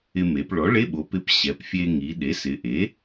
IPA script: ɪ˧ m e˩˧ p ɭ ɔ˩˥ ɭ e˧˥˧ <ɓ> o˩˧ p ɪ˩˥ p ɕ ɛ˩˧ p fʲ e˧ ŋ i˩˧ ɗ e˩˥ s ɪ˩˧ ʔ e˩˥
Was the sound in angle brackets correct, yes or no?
yes